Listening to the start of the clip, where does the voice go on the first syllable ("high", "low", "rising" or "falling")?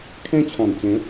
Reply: high